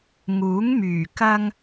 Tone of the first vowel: rising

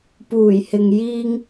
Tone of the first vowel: low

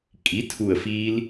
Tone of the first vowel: rising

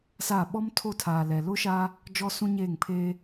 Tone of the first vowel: falling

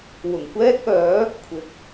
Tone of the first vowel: low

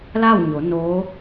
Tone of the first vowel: falling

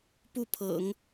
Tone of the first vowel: falling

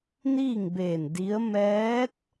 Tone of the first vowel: falling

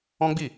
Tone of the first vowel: high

